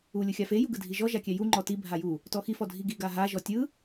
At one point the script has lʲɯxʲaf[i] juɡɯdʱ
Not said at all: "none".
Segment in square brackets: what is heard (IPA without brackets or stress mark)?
e